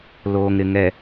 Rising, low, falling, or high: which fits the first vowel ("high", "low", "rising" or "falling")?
low